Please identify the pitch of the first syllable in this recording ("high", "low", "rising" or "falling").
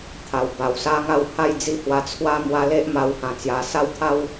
low